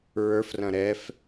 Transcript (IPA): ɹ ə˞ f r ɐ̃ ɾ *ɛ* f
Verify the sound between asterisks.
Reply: correct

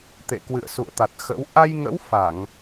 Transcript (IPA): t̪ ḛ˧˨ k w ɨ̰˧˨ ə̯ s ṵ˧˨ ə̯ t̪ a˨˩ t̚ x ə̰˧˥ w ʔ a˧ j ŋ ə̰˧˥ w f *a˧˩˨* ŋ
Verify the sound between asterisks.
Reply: correct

